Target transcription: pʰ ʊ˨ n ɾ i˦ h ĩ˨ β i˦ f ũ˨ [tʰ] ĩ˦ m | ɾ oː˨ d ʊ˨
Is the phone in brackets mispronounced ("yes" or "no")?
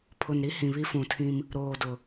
no